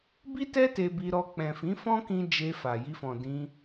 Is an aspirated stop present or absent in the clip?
absent